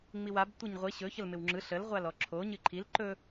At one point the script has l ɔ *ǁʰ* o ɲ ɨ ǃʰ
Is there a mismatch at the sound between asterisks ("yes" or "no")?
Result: no